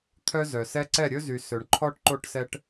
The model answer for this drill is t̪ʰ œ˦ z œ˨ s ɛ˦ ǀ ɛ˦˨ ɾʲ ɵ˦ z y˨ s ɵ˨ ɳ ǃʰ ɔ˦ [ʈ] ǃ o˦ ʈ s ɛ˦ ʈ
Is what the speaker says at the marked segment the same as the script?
yes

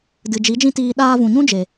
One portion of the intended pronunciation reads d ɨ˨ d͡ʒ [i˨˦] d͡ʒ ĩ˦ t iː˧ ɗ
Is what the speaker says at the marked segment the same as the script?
yes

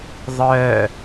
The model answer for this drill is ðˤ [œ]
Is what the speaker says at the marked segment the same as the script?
yes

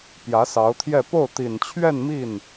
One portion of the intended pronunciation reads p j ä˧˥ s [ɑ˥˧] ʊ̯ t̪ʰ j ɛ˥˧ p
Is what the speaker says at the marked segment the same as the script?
no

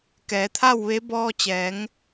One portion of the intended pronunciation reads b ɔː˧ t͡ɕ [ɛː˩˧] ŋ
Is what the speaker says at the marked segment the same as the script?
yes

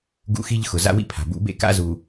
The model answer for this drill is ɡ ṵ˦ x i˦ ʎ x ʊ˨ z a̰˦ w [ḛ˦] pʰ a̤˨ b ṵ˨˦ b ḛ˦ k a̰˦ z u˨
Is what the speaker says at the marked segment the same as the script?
no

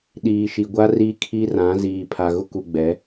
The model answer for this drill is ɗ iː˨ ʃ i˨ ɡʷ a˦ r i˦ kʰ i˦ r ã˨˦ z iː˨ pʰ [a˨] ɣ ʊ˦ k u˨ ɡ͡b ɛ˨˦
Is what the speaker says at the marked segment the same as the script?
yes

